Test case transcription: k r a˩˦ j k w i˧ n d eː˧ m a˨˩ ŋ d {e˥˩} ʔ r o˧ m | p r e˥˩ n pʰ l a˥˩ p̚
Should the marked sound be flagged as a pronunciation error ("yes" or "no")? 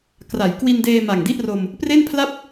yes